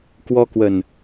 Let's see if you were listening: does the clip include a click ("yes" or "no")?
no